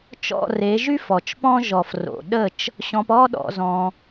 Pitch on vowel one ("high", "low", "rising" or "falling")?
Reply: falling